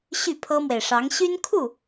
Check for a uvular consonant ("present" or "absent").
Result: absent